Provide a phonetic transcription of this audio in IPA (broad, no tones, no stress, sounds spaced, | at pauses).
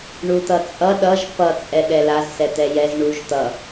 ɳ u t̪ ʌ t͡sʼ ʌ ɗ ʌ ʒ p ʌ t͡sʼ ɛ ɗ ɛ l a z s ɛ t̪ ɛ j ɛ z ɳ u ʒ t̪ ʌ